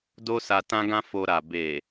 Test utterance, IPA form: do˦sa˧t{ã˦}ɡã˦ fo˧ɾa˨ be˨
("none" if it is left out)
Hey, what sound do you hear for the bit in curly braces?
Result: ã˦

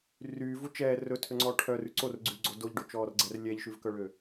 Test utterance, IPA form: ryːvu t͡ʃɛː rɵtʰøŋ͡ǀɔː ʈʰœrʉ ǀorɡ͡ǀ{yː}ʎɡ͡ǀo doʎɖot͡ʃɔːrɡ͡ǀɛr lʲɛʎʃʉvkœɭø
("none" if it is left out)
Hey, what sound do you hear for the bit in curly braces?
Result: y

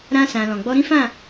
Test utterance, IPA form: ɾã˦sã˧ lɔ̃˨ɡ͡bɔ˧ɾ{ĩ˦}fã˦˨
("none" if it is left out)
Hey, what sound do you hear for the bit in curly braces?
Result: ĩ˦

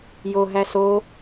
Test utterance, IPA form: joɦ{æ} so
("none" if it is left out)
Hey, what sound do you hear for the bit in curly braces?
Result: æ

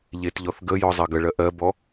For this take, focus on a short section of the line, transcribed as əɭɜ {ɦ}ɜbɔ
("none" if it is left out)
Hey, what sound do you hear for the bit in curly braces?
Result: ʔ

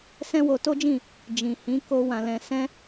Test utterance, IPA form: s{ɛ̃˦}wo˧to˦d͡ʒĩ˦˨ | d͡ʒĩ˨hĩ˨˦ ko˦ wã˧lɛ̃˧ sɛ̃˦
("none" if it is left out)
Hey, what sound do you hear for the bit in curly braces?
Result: ɛ̃˦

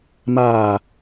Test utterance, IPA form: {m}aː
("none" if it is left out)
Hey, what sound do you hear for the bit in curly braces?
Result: m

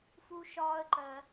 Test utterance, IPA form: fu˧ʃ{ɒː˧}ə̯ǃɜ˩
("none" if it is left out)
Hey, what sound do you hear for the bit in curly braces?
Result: ɒː˧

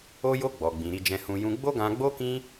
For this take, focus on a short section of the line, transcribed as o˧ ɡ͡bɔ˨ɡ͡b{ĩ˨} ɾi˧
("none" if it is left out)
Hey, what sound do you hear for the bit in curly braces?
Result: ĩ˨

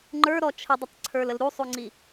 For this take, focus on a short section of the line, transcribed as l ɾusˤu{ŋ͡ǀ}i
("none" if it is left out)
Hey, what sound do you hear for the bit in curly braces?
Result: ŋ͡ǀ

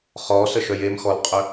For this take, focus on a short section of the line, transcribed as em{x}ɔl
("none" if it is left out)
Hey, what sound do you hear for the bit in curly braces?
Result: x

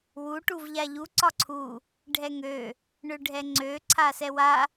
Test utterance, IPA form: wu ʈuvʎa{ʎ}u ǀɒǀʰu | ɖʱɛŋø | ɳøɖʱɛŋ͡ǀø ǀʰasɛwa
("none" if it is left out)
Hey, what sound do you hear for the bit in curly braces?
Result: ʎ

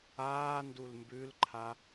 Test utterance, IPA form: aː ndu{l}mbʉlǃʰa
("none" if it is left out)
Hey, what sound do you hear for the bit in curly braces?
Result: l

